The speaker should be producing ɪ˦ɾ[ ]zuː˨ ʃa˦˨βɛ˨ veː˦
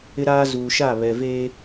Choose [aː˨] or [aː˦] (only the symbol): aː˦